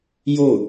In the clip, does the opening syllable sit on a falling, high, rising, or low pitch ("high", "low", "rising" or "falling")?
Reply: falling